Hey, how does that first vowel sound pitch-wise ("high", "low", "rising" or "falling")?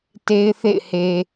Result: high